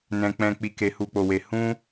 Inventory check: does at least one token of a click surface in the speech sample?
no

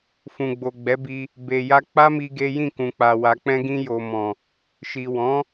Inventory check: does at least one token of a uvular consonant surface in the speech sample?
no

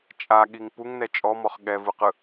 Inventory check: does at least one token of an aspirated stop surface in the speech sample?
no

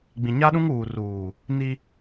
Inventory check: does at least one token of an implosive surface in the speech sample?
yes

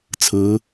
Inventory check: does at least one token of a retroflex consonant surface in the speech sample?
no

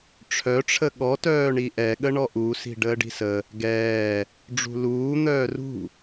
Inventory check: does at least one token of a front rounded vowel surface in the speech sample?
yes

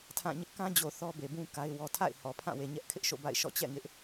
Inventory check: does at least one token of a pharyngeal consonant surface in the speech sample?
no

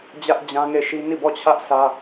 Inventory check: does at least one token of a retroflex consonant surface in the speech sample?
no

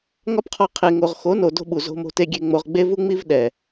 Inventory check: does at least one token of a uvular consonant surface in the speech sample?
yes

